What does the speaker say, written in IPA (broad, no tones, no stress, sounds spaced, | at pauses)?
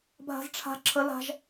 bʱ a̤ z ʈ͡ʂʰ a̤ ǁʰ ə l a̤ ʒ